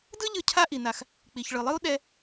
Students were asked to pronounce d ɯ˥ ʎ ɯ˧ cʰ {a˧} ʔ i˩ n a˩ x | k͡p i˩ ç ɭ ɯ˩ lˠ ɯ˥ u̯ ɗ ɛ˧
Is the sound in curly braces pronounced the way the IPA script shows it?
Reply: no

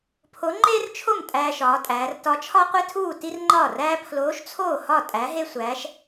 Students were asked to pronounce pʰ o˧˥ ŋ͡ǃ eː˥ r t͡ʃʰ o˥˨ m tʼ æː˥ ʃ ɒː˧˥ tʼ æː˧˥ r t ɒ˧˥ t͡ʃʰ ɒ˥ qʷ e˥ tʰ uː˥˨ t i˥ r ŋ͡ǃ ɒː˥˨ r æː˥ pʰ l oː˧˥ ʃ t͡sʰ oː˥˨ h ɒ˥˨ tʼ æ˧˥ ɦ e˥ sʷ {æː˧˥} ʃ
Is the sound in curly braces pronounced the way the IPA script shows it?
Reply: yes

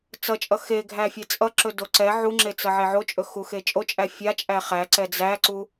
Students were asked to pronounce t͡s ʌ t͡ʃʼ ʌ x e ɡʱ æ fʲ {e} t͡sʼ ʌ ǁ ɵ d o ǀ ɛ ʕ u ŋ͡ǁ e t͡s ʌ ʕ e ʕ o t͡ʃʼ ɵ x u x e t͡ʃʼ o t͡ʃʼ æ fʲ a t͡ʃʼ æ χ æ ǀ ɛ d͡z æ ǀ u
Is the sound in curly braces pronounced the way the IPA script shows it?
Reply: yes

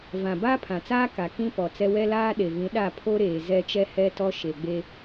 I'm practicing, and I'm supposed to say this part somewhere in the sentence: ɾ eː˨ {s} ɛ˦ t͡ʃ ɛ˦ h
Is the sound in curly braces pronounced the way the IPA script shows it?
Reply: no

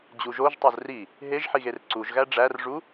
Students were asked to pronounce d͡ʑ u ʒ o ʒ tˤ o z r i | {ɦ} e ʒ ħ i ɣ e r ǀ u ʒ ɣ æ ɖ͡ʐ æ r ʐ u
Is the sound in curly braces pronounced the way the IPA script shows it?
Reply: yes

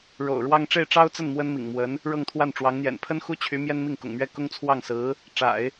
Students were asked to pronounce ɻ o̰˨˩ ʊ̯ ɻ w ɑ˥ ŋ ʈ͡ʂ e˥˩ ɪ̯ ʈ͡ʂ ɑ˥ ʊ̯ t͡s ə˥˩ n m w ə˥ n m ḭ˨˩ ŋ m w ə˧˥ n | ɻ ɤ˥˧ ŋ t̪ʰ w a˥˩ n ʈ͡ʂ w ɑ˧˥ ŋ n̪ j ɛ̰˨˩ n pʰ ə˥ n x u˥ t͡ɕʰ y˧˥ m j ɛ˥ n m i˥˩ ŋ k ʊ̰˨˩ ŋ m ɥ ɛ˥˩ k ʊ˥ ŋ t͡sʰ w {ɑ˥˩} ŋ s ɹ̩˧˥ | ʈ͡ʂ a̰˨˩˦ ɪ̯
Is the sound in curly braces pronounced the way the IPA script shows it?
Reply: yes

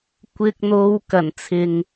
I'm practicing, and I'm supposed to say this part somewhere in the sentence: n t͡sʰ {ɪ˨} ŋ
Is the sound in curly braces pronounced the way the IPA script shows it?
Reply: yes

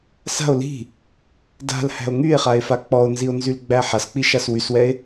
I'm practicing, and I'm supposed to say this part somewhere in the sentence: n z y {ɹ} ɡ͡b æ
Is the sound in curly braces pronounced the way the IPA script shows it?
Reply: no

